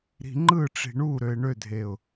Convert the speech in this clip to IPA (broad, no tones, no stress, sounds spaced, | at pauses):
ɾ i̤ ŋ͡ǃ ɯ ʈ͡ʂ i̤ ɳ u ɾ ø ɪ̯ ɳ ø dʱ e ʊ̯